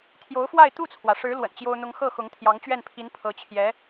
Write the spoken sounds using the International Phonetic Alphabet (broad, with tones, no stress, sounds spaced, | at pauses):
t̪ʰ j o˧˥ ʊ̯ f w a˥˧ ɪ̯ t̪ u˥˩ t͡sʰ w ä˩ ʂ ɻ̩˧˥ l w ə̰˨˩ n t͡ɕ j o˥ ʊ̯ n̪ ʊ˥ ŋ x ɤ˥˩ x ʊ˧˥ ŋ t̪ʰ j ɑ˧˥ ŋ t͡ɕ ɥ ɛ˥˩ n pʰ i˧˥ n pʰ ɤ˧˥ t͡ɕʰ j ɛ˧˥